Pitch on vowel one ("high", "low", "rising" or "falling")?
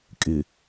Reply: low